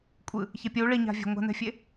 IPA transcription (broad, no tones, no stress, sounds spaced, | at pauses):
kʷʼ ɯ | ç e pʲ u ɭ i ɲ a̤ vʲ a̤ ŋʷ a̤ n ɛ̤ fʲ e